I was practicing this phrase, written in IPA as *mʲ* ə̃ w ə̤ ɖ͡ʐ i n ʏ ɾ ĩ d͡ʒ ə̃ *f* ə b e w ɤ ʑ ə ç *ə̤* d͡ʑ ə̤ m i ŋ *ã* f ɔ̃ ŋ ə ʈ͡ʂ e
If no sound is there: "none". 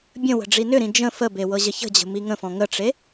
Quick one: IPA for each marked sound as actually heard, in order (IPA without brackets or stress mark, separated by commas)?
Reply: bʲ, f, ə̤, ə̃